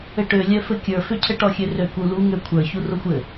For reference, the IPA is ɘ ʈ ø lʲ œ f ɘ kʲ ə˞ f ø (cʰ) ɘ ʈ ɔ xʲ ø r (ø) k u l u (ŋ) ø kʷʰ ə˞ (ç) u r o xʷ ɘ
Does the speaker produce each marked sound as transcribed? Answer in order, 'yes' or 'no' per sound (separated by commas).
yes, yes, yes, yes